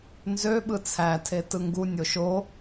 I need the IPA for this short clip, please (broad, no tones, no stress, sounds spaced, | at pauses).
n z ø ɓ ɯ t͡sʰ æ tʰ e t ɯ ŋ ɡ u nʲ o ʃ o